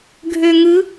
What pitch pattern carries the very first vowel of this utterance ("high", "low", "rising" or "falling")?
low